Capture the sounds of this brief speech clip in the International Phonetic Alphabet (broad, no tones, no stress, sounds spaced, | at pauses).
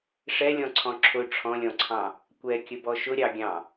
ʂ ɛ lʲ ɔ̃ ǀʰ ɔ̃ ǁʰ ʊ ʈ͡ʂʰ ɔ̃ lʲ ɔ̃ ǀʰ ɑ̃ | kʷ ɛ kʲ ə b ɔ ʃ ʊ ɾʲ ɑ ɡʲ ɑ̃